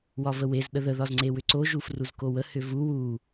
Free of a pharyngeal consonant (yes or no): yes